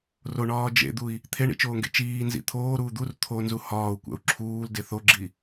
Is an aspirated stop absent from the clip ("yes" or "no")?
no